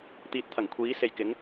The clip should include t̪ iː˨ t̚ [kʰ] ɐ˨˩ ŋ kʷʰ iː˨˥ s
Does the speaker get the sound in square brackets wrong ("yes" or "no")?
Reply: yes